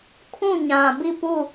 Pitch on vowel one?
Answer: falling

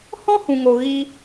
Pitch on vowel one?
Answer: high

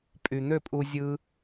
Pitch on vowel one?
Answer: low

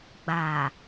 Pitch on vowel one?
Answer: low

